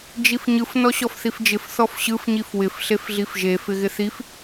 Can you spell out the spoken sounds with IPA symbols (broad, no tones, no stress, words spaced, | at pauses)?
d͡ʒifɲɯf nɔɕɔfθifd͡ʒɪf θɔfɕɯf ɲifwɪf ɬefɮifʒe fɪɣɪθif